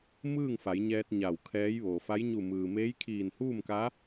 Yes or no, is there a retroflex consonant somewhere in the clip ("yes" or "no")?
no